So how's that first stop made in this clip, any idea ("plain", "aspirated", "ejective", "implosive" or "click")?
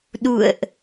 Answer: implosive